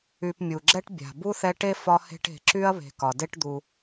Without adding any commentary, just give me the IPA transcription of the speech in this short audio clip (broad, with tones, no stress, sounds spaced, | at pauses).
y˨ p mʲ u˩ ɡ͡ǁ ɛ˥ ʈ bʲ a̤˩ b u˥ θ ɛ˦ ʈ e˥ f ɒ˦ h e̤˦ ʈ e̤˨ ǁ y˥ ɐ̯ β e̤˨ k ɒ˩ d e˥ ʈ d̪ u˨